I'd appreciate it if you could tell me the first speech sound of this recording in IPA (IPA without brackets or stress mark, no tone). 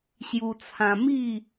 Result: ɕ